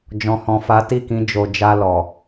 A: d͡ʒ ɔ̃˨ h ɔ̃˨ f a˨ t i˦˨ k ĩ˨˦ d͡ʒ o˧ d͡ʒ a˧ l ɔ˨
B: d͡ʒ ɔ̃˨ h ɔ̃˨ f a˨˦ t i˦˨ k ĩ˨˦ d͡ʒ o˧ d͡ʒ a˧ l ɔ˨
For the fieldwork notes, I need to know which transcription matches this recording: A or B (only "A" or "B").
B